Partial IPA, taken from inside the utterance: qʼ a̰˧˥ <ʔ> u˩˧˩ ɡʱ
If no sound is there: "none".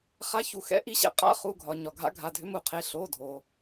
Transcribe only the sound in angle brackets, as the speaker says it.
χ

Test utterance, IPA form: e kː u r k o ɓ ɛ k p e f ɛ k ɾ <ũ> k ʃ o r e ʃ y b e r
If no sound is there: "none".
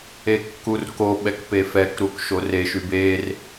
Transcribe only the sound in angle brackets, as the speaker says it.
u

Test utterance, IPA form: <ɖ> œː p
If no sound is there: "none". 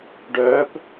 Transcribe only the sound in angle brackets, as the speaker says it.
ɖ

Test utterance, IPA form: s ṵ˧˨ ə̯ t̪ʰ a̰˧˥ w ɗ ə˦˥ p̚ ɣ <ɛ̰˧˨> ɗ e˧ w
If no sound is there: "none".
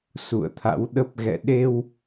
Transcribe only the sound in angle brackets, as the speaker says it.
ɛ̰˧˨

